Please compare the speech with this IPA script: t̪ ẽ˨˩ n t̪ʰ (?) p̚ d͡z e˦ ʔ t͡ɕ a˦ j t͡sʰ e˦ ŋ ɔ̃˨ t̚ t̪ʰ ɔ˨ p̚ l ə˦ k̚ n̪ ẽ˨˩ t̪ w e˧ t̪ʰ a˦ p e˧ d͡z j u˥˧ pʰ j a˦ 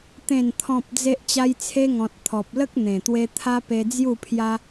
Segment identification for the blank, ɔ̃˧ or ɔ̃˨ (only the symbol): ɔ̃˨